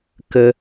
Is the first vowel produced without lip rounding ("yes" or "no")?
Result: yes